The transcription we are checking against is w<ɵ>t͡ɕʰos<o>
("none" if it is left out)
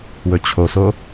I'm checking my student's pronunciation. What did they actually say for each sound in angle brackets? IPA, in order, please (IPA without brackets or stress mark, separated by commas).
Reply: ɵ, o